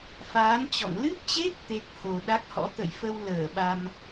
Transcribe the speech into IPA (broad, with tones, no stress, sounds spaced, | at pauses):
f aː˨˦ n t͡ɕ ɔ̰˧˨ ŋ l ɨ˦˥ p̚ t͡ɕ e˦˥ k̚ t̪ e˦˥ k̚ h o˨˩ ɗ a˦˥ k̚ h ɔ̰˧˥ t̪ ə̰˧˨ j f ə˧ w l əː˧˩ ɓ a˧ m